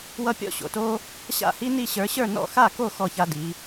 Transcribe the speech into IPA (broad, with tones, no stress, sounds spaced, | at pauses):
w ʌ˥ pʲ ɔ̰˥˧ ɕ o̰˧˥ t o˥ | ɕ a̰˥˧ h i˥ n i˥˧ ɕ ə˞˧˥ ɕ ə˞˥˧ n ɔ̰˥˧ x a˥˧ k o˥˧ x ɔ˥˧ ç a˥ d i˧˥